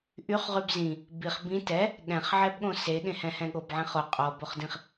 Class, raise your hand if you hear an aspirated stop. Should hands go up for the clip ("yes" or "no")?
no